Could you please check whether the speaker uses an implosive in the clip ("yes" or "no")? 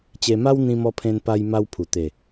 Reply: no